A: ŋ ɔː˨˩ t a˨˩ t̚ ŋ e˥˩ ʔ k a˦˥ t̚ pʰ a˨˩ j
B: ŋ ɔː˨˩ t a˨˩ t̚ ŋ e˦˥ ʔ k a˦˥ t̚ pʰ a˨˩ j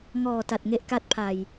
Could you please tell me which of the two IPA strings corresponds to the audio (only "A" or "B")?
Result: B